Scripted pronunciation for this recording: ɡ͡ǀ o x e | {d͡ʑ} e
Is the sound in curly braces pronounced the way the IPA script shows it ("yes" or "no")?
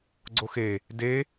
no